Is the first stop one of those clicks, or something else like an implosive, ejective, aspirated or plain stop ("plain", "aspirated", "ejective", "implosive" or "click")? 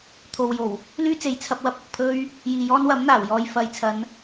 aspirated